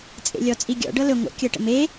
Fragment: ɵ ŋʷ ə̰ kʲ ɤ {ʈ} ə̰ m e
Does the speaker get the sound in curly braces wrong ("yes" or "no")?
no